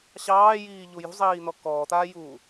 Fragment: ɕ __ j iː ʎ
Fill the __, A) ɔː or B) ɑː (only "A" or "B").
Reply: B